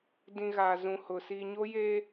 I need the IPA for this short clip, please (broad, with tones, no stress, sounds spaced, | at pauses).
d ĩ˨ ɣ aː˨ z ũ˨ h ʊ˨ s i˨ ɲ o˦ j eː˦